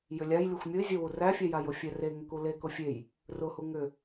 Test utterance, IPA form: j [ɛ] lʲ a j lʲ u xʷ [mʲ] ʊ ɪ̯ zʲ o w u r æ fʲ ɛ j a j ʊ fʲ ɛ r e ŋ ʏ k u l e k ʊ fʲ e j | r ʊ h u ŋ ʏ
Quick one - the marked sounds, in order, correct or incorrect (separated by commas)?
incorrect, correct